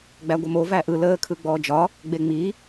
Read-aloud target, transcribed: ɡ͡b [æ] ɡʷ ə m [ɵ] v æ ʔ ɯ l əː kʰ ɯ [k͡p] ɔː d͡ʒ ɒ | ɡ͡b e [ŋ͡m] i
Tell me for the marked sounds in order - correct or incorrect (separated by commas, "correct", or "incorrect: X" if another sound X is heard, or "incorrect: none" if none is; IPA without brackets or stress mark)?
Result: correct, incorrect: o, incorrect: ɡ͡b, correct